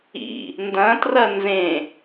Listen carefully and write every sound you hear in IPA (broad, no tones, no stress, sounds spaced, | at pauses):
ḭ | n d ɐ̃ t r ɐ n z ẽ